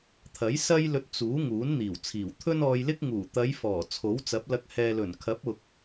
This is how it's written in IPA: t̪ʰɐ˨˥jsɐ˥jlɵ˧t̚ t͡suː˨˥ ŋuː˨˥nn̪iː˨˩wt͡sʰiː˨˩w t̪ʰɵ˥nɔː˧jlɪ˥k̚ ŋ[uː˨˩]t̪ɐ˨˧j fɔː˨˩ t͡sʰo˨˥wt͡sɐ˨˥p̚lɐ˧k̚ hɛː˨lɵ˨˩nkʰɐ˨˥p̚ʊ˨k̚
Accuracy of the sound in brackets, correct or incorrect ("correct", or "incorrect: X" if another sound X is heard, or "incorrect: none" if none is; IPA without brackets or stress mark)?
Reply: correct